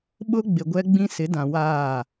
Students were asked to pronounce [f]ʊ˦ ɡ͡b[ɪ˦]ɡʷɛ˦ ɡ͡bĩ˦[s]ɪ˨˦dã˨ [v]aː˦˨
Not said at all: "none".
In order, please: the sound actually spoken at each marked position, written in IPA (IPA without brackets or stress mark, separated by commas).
ɓ, ɪ˨, s, w